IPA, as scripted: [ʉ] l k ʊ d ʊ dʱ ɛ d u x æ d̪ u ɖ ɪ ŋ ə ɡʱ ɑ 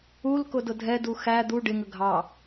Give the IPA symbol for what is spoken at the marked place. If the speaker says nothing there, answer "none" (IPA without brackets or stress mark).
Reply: u